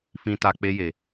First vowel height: high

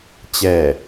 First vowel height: mid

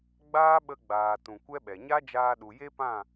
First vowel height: low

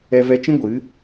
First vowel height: mid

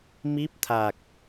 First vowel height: high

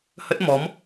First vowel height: mid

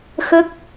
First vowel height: mid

